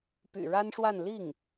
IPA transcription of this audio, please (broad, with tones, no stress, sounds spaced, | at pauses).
p y̰˨˩ ɻ a˥ n ʂ w a˥˧ n l i˥˩ ŋ